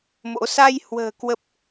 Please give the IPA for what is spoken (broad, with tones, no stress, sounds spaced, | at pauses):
m o̰˧˥ s a˧ j h w ə̤ː˨˩ k w ə˦˥ p̚